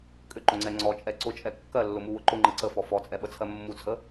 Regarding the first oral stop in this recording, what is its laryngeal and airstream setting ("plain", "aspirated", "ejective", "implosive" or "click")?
ejective